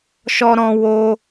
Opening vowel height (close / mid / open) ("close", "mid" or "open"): mid